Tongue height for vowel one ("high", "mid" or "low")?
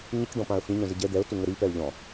high